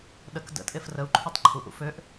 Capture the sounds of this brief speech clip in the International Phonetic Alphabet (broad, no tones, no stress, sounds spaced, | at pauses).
ɗ ə k d ə̰ tʼ e f r ə u̯ ǃʰ u tˤ ǃʰ u ʔ ṵ f ø ʔ